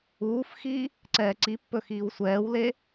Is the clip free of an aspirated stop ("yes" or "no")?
yes